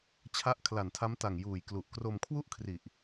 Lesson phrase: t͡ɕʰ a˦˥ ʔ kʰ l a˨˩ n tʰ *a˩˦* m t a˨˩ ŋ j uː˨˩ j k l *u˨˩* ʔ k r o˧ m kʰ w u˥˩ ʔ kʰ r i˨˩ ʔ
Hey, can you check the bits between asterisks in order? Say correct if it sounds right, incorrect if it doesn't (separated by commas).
incorrect, correct